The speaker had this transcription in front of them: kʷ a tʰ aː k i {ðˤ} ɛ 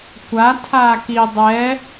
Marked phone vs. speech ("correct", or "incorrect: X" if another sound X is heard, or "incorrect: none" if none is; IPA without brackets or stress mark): incorrect: dˤ